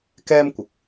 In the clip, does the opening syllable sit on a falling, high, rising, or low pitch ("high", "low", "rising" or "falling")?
high